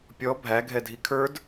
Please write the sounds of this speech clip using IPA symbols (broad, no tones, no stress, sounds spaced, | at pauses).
pʲ ɔ bʱ æ ɡʱ ɛ dʱ i kʰ ə˞ d